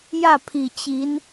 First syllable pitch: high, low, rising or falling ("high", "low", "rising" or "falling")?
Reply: falling